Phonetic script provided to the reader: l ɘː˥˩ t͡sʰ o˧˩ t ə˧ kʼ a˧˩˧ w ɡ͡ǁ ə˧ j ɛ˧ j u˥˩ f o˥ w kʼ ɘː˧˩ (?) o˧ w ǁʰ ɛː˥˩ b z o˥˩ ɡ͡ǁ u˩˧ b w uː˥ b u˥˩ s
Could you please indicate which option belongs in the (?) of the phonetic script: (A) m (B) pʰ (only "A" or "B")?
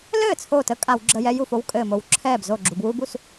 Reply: A